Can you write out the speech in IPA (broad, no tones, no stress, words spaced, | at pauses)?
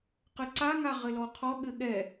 qɘǀa ŋaʁɘlɔqʰɔ ɠɘɠɛ